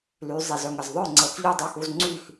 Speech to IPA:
l y˩˧ zˤ i˩ z œ˩˧ ŋ ə˩ z ðˤ œ˥˩ ŋ͡ǀ ə˩˧ x ʎ y˥˩ dˤ ø˥˩ x u˧ z ŋ͡ǀ y˥˩ x

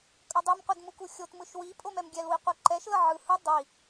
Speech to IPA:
kʼ ʌ dˤ i m qʷ i d m u k u xʲ o t m ɯ ʃ w i pʼ o m ɛ m ɡʲ ɛ l w i qʷ ɯ ǃ ɛ ʃ l ʌ ʕ ɯ h ɯ dˤ i

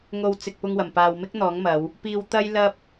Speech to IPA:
ŋ o˧ w t͡s ɪ˨ k̚ p ʊ˧ ŋ w ɐ˨˩ m p aː˨ w m ɪ˥ k̚ n̪ ɔː˨˥ ŋ m ɐ˨˧ w | p iː˧ w t̪ ɐ˥ j l ɐ˥ p̚

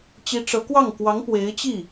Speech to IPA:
t͡ɕ i˧˥ ʈ͡ʂ ɤ˧˥ k w ɑ˥˩ ŋ k w ɑ˧˥ ŋ p w e˧˥ ɪ̯ t͡ɕ i˥˩

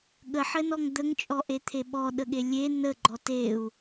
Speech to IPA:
ɠ ə ħ ɘ n ɔ ŋ d̪ ə ŋ t͡ʃʼ ɔ ʔ e t̪ʰ e ɓ ɔ ɗ ə ɠ e lʲ e n ə ɡ͡ǃ ɔ t e u̯

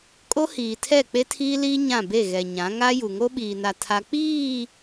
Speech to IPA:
kʼ o˦ h iː˨ tʰ ɛ˦˨ k͡p e˦ tʰ iː˦ l iː˦ ɲ ã˦˨ b e˦˨ ɣ ɛ˨ ɲ ã˨˦ ŋ a˦ j u˨ ŋ o˦ ɓ iː˨ n a˨ tʰ a˦ k͡p iː˦˨

